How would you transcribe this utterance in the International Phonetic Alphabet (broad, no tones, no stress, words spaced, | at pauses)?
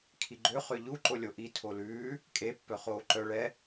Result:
kʰiɡ͡ǃø χøʎu ǃolʲoʔi tʰolʉː | kʼe pːœχoːǃœ ɭɛ